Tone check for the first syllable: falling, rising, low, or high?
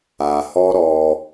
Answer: low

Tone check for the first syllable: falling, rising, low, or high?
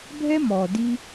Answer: high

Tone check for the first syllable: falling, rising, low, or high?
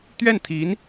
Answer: falling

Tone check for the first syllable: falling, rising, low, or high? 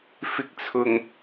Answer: low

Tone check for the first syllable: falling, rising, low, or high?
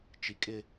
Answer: low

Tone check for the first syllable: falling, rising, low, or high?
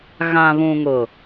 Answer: low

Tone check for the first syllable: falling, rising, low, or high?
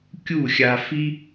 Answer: falling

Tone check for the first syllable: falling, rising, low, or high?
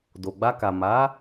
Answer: low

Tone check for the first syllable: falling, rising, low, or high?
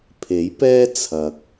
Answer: rising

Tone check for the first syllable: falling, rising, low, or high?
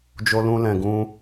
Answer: high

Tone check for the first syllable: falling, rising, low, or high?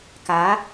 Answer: rising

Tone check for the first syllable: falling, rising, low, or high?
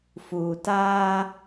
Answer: low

